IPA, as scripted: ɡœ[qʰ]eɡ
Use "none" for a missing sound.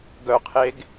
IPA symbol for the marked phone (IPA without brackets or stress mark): qʰ